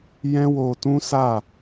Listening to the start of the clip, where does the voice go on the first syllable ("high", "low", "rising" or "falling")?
high